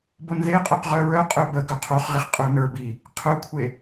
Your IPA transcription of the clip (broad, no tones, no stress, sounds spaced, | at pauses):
b o n ð e qʼ œ q ʁ œ ɹ œ qʼ œ b ə ɡ œ qʰ o χ ʁ i χ qʼ ə˞ n ə˞ b i | qʰ œ kʷʰ e